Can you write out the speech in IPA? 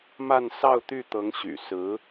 m a˥˧ n s ɑ˥˧ ʊ̯ t̪ y˥˩ t̪ ɤ˧˥ ŋ ɕ y̰˨˩ s ɹ̩˧˥

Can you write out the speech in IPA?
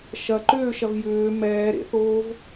ʃ ɐ ǃ ʏː ʃ ɐ v j ʏː m ɛː ɾ ḛ θ oː v

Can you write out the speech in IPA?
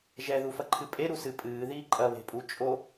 ʒ ɛ ð u f ɐ ǃʰ ɨ pʼ e ɾ u s ɨ pʼ ɨː ð iː ǃʼ ɐ β e̤ pʼ u t͡ʃʼ o

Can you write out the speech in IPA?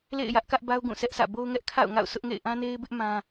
l ḛ˦˨ ɪ̯ j ä˦ ʔ k ä˦ ʔ b a˦ ʊ̯ ɡ ũ˦˨ s ɛ˦ ʔ s ä̰˦˨ b o˦ ʊ̯ ŋ ɛ˦ ʔ kʰ a̰˦˨ ʊ̯ ŋ a̰˦˨ ʊ̯ s ʊ˦ ʔ ŋ ḛ˦˨ ɪ̯ ʔ ã˦ n e˦ ɪ̯ b ɪ˦ ʔ m ã˦

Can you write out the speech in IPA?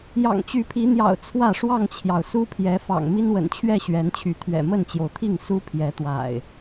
j ɑ̰˨˩ ŋ t͡ɕ y˨˦ pʰ i˨˦ n̪ j ɑ̰˨˩ ʊ̯ t͡sʰ w ä˥˨ ʂ w ɑ˥˨ ŋ t͡ɕʰ j ɑ˩ ʊ̯ s u˦ pʰ j ɛ˨˦ f ɑ̰˨˩ ŋ m i˦ n w ə̰˨˩ n t͡ɕʰ ɥ ɛ˥˨ ɕ ɥ ɛ˨˦ n t͡ɕʰ y˨˦ t̪ʰ ɥ ɛ̰˨˩ m ə˥˨ n t͡ɕ j o˩ ʊ̯ t̪ʰ i˥˨ ŋ s u˦ pʰ j ɛ˨˦ t̪ w a̰˨˩ ɪ̯

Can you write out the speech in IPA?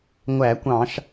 ŋʷ æ˧˩˧ kʷ ɑ̃˧˩˧ ʃ

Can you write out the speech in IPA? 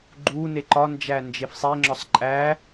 ɡ͡ǃ u n e ǃ ɒ n d͡ʒ æ n d͡ʒ e f sˤ e ŋ͡ǁ ɒ sˤ ǃʼ æ

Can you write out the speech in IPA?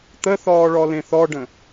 t̪ ə θ ɔː ɭ ɔ l ẽ θ ɔ ɖ ə̃

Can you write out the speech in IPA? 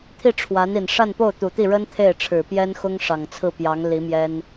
t̪ʰ i˥˩ ʈ͡ʂʰ w a˧˥ n i˨˩ n ʂ a˥˧ n p o˥˩ ʊ̯ t̪ u˨˩ t̪ i˥˩ ɻ ə˥ n t̪ʰ e˥˩ ɪ̯ ʈ͡ʂʰ ɻ̩˨˩ p j ɛ˥ n x ʊ˥ ŋ ʂ ɑ˨˩ ŋ t͡sʰ ɹ̩˥˩ p j ɑ˧˥ ŋ l i˧˥ m j ɛ˥ n

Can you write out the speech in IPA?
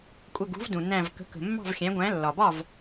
kʷʼ ə˧˩ ɡ ṳ˩˥ v d ũ˩ n æ̃˧˩ v k ə̤˩˥ k ə̤˩ mː ɑ̤˥˩ v xʲ æ̃˩˥ ɡʷ æ̃˩˥ lː ɒ˩ b ɒ˥˩ v

